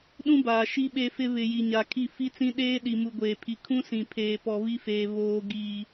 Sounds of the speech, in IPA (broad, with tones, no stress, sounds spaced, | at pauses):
ɗ ũ˦ b aː˨ ʃ i˦ ɓ e˦ f ɪ˦ β ɪ˨ j i˨ ɲ a˨ kʰ i˦˨ f i˦ t͡s ĩ˦ ɗ eː˦ ɗ i˨ m u˨ ɡʷ eː˨ pʰ i˨ kʰ ũ˦ s ĩ˨ pʰ eː˨ p ɔ˨ β i˦ f eː˨ β oː˨ ɡ iː˨